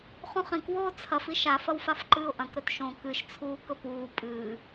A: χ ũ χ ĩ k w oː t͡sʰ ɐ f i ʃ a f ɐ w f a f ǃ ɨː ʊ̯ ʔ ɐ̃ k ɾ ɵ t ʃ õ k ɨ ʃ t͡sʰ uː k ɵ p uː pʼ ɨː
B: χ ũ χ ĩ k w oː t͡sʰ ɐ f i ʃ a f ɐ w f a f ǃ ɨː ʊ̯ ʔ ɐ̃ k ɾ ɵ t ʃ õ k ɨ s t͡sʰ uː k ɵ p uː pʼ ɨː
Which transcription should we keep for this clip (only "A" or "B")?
A